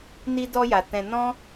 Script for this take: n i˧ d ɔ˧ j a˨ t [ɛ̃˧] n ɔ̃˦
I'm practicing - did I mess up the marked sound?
no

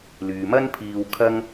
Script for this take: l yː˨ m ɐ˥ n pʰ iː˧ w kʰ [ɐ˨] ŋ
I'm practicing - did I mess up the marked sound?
yes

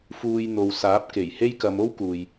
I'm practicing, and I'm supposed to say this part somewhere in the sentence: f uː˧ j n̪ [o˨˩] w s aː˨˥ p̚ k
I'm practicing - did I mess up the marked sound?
yes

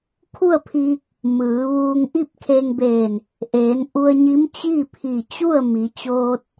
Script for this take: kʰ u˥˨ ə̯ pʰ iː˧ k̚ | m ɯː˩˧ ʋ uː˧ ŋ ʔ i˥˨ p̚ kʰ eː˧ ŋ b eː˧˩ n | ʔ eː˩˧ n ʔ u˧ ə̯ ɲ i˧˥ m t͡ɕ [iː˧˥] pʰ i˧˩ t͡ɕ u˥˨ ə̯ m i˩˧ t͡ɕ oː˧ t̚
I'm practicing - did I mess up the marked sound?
yes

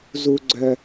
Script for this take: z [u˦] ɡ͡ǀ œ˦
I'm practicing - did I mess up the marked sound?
no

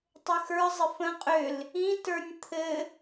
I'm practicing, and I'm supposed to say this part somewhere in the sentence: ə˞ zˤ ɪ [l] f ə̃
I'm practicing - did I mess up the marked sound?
yes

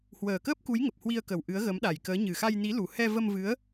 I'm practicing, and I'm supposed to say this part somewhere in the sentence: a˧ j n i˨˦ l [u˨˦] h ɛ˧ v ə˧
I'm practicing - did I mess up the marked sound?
yes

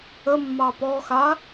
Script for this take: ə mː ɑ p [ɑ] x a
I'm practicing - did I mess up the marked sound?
yes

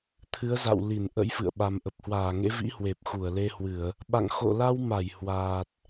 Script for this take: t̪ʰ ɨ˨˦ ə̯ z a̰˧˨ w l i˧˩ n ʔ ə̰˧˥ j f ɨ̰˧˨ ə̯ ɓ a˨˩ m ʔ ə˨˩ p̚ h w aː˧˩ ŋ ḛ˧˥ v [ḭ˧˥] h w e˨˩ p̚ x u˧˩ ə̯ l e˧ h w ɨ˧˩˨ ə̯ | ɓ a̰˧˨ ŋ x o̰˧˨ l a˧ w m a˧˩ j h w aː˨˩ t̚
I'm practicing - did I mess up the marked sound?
no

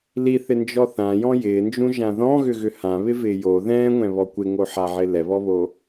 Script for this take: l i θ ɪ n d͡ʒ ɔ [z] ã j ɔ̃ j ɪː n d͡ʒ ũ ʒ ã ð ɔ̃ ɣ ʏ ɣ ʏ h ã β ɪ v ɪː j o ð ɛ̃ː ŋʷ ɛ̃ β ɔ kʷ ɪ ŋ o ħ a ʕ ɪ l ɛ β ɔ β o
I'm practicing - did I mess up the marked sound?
yes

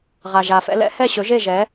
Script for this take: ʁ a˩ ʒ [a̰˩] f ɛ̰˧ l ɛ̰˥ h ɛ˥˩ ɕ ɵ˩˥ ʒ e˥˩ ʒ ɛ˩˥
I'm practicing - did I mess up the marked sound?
yes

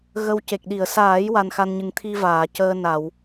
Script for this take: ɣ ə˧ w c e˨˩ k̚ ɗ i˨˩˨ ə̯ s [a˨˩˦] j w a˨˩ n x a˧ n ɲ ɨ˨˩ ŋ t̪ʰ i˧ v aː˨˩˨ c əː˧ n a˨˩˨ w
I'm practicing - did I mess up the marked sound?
yes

